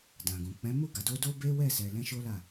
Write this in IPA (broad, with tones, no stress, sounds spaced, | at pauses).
d ã˨ ɡ ũ˨ k͡p ɛ̃˨˦ m u˦˨ ɡ a˨ d o˧ d o˦ b e˦ w ɛ˦˨ s ɛ˨ l ɛ̃˧ ʃ o˦ l a˦˨